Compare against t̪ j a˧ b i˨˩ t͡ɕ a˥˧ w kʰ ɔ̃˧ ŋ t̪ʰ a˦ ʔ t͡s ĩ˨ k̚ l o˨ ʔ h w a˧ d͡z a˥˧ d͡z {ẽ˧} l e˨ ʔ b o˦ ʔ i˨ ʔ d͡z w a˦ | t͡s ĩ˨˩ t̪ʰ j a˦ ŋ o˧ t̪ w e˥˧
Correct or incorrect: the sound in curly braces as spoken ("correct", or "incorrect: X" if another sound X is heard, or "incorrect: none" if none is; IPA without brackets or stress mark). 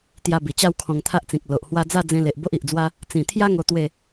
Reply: correct